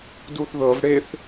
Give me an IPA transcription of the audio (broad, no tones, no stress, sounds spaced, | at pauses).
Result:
d u θ ð ɤ v ɽ e θ